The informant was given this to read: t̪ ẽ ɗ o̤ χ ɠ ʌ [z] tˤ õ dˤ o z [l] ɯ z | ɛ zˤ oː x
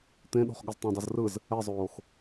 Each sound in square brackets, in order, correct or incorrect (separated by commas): correct, incorrect